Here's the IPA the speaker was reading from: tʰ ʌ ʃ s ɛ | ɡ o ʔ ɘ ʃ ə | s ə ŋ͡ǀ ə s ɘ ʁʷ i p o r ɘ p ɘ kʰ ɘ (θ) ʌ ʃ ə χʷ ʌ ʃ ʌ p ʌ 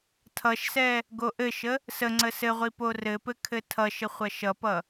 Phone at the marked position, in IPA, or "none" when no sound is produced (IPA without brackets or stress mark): tʰ